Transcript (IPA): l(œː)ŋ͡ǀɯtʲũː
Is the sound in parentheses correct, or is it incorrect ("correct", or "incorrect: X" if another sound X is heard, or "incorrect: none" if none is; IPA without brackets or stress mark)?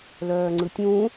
correct